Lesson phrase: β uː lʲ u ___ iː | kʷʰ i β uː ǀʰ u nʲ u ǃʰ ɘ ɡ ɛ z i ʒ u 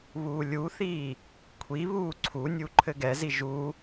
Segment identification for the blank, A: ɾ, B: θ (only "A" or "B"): B